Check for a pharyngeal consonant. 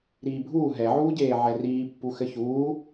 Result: present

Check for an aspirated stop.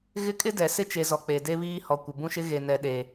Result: absent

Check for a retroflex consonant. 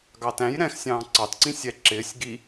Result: absent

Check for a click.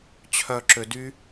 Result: present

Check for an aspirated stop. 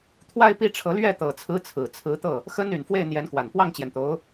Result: present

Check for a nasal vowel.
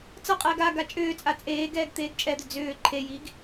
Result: absent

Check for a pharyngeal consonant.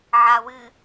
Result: present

